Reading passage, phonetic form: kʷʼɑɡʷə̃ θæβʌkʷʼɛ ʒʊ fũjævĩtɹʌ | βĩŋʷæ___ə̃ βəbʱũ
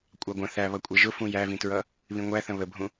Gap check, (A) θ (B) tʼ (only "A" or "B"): A